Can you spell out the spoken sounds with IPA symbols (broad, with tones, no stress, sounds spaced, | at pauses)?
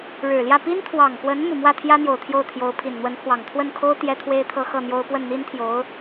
ɻ ɻ̩˨˩ l j ä˥˩ p i˥ n t̪ʰ w ɑ˨˩ ŋ k w ə˧˥ n m u˨˩ m w ä˥˩ t̪ʰ j ä˥ n̪ j o˨˩ ʊ̯ t̪ʰ j o˥˩ ʊ̯ t̪ʰ j o˧˥ ʊ̯ pʰ i˨˩ n n̪ w ə˧˥ n pʰ w ɑ˨˩ ŋ t̪ʰ w ə˥˩ n kʰ o˥ ʊ̯ t̪ j ɛ˥ t̪ʰ w e˥ ɪ̯ t̪ʰ ɤ˥˧ x ɤ˥˩ n̪ j o˥ ʊ̯ p w ə˥˩ n n̪ i˥ n t̪ʰ j o˧˥ ʊ̯